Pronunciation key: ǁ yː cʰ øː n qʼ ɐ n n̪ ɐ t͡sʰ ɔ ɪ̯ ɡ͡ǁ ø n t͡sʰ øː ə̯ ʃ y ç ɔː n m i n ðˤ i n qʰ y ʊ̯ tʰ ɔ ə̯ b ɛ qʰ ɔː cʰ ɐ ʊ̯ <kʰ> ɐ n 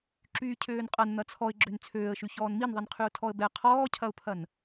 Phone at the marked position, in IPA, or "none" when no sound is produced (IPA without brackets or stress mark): pʰ